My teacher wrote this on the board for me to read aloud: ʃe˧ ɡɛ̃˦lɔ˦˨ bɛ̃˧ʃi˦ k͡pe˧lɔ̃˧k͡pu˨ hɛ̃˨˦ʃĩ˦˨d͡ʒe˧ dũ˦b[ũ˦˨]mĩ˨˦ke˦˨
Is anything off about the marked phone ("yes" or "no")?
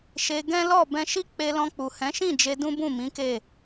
no